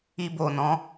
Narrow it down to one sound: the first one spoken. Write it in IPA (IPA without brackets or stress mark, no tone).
i